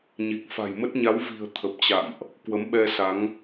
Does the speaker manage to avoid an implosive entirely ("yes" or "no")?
no